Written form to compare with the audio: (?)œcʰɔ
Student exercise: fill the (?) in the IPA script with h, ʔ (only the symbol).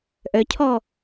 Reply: ʔ